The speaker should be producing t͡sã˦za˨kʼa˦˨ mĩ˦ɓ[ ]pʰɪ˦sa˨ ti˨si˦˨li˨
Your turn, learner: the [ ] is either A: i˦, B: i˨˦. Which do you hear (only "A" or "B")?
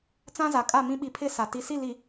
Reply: B